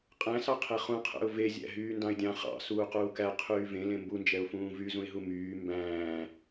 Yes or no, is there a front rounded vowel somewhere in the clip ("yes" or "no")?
yes